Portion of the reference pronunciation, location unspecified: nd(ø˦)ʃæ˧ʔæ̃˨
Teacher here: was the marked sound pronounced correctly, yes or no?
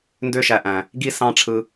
yes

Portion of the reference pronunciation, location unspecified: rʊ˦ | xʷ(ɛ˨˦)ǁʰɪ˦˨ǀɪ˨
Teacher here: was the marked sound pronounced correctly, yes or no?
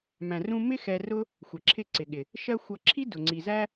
no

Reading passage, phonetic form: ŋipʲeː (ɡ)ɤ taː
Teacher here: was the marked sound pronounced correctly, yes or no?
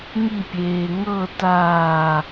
no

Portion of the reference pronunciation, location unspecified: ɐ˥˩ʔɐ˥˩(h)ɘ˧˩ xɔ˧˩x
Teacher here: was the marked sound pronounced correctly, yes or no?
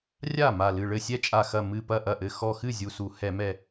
no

